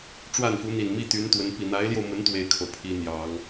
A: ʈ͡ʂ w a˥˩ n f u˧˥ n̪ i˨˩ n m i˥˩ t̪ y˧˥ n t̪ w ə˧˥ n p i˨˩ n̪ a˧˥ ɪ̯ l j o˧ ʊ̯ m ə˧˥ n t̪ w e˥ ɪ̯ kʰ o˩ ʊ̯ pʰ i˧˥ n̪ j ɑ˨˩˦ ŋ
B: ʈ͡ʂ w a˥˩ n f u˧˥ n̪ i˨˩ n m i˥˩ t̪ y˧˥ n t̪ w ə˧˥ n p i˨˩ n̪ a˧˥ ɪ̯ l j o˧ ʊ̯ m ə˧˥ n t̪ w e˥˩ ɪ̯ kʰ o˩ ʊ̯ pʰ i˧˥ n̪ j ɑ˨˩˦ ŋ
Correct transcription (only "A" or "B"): B